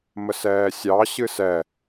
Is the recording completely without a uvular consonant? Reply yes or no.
yes